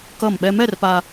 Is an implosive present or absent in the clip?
present